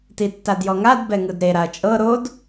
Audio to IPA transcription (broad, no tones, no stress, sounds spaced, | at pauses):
t i tː a d j ɔ ŋ a d b ɛ ŋ ɯ d ɾ e ɾ a ɐ̯ t͡ʃʼ ɤ ɾ o d